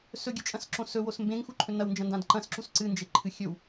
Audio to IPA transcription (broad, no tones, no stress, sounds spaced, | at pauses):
s ɵ ɡʲ ɨ t͡ʃʼ ɐ̃ s ǁ õ s ɵ w o s m b ẽ ŋ x u ǃʰ ɵ n ɐ w n d͡ʒ ɐ̃ n d ã d ǃ ɐ̃ s ǁ u s ǀ ɨ n d͡ʒ e ǃʰ ɨ xʲ ɵ w